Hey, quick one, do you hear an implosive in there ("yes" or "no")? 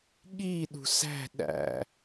yes